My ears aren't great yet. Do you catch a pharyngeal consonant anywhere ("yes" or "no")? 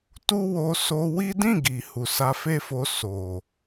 no